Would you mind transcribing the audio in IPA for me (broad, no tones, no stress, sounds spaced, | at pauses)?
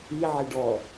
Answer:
i ʕ e ɖ ɔ